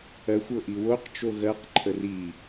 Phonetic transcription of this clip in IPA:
ɜ xʷ ɤ ʔ i w o q t͡ʃ o ɣ ɜ q ǃʰ ə r i

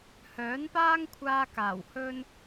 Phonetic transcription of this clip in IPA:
h œː˨˥ n p aː˥ ŋ kʷʰ aː˧ k aː˨˩ w h ɵ˥ n

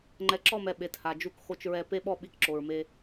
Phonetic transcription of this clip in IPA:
ŋ͡ǃ ɛ˨ ǁ ɔ˦˨ m ɛ˨ ɓ e˨ t h a˨ d͡ʒ u˦ k x o˦ t͡ʃ ɹ ɛ˦ p e˦ ɓ ɔ˦ ɓ i˦˨ k ǁ o˨ ɹ m e˦

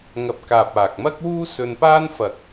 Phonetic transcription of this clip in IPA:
ŋ ɐ˧ p̚ k aː˨ p̚ aː˨ k̚ m ɐ˥ k̚ w uː˥ s ɵ˧ n p aː˥ n f ɐ˨ k̚

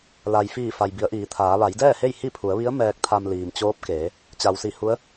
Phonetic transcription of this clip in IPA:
l a˩ j f iː˧˩ f a˩ j b i˩˧ ə̯ ʔ iː˩˧ t̪ʰ aː˩˧ ʋ a˩˧ j d ɛː˥˨ h e˥˨ j h i˥˨ pʰ u˩˧ ə̯ ʋ i˧˥ ə̯ m ɛː˧ k̚ t̪ʰ a˧ m l iː˩ m t͡ɕ oː˧˥ p̚ k eː˩˧ | t͡ɕ a˩ w s i˧˩ h u˧˥ ə̯

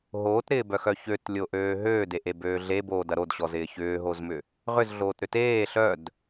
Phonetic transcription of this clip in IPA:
ɦ oː t ɾ ɪː b œ x œ ç ø t lʲ o ʔ øː ɦ øː d e ʔ e b øː ɮ e b oː d ɐ ɾ o d ɕ ɔ z ɪː ç ʏː ɦ o z m ʏ | ʁ ʏ z ɮ oː t ɾ ʏ t eː ɬ œ d

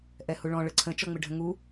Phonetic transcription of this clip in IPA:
ʔ ɛ h u ɭ ɔ̃ ɭ ə ǀʰ ə̃ t͡ʃ ɔ ŋ͡m ɪ ɖʱ ə̃ ŋ u

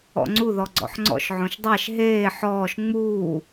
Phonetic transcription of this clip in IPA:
ɔ̰ ŋ͡ǀ u ð ɔ ɡ͡ǀ ɔ̰ ħ ŋ͡ǀ ɔ̰ ʃ ʕ õ ʃ dˤ æ ʃ ɦ eː ħ ɔː ʃ ŋ͡m uː

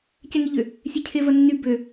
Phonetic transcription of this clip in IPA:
c ɛ ŋ i ʎ ʏ | sʲ e cʰ e v ɐ nː y b ø

